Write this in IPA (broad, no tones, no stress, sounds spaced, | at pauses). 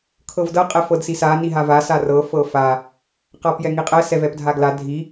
kʰ ɤ v d ɤ qʼ ɛ f ɤ d s i s a n i ɦ a v a s a r ɤ f ɤ f a | q a p j ɛ ŋ i qʼ ɛ s ɛ v ɛ p dʱ a ɡ l a dʱ i